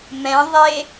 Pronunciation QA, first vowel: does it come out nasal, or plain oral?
nasal